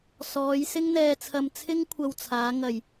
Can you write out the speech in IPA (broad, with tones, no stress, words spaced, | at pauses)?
sɔː˨˧j sɪ˥ŋn̪ɛː˧t͡sʰɐ˧m t͡sʰɪ˥ŋkʷʰɐ˧wt͡sʰaː˨˧ ŋɐ˨˩j